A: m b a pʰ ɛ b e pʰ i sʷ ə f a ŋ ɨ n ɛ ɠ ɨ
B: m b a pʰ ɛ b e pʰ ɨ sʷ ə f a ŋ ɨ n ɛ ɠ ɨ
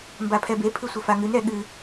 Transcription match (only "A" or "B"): B